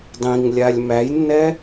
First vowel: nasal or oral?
nasal